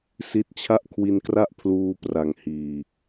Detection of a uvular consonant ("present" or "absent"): absent